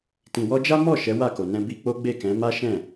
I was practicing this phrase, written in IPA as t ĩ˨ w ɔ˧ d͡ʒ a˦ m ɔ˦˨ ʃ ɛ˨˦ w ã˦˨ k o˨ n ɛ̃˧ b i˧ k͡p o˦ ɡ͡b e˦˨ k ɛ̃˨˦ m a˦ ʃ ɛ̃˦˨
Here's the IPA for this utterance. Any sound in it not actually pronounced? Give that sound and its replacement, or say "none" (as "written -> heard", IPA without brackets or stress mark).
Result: ã˦˨ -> a˦˨